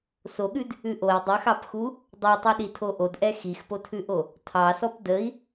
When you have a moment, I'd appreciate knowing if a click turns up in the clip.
no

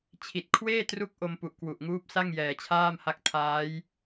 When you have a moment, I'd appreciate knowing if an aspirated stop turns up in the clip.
yes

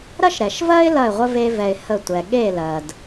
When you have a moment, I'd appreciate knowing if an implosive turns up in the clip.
yes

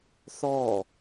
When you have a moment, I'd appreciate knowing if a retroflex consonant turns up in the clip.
no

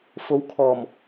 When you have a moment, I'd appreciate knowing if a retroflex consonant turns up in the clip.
no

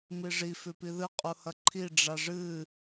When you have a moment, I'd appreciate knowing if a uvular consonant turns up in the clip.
yes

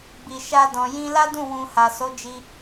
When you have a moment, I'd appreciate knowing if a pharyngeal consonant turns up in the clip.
no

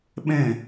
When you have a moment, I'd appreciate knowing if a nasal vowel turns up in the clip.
yes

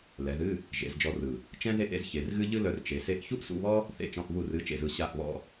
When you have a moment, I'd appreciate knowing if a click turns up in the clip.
no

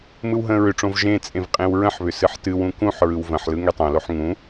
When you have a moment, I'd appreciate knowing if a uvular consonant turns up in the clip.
yes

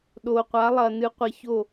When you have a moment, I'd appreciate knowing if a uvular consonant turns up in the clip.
yes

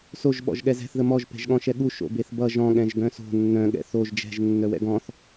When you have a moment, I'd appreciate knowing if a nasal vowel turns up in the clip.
yes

